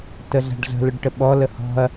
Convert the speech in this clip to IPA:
t ə ɮ a̤ ɖ ɮ ə̤ l ʊ ɖ ʈ ə ɓ ɔ l ə h ɔ̤ ɐ̯

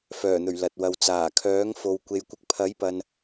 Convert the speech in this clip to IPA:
f œː˨˩ n̪ ɵ˨˩ ɥ l ɐ˨ t̚ w ɐ˨ w t͡s aː˨˩ kʰ œː˨˥ ŋ f o˨ w kʷ e˨ j kʷ ɪ˨˥ k̚ pʰ ɐ˨˥ j p ɐ˨ n

